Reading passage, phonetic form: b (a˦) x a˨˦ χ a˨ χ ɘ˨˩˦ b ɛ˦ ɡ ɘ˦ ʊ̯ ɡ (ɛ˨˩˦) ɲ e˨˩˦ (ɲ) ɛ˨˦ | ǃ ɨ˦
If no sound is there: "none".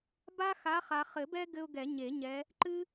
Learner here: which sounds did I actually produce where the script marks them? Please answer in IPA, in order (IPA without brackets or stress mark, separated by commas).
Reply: a˦, ɛ˨˩˦, ɲ